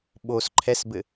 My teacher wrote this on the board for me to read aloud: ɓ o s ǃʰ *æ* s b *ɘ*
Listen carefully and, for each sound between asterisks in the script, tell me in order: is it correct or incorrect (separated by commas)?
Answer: incorrect, correct